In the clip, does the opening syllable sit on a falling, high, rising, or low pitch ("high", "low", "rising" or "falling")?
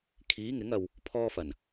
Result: rising